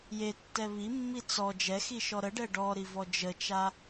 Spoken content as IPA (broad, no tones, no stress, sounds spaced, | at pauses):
j e tː ɛ β i mː i t͡s ɔ d͡ʒ ɛ x i ʃ ɔ ɾ ə ɖ ɛ ɖ ɔ ɾ i v ɔ d͡ʒ ə t͡ʃ a